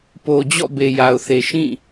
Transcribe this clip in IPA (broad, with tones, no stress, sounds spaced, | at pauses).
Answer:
p o˨ d͡ʑ ɔ̰˦˨ b e˨ j a˨ ʊ̯ θ e˨ ʃ ĩ˦˨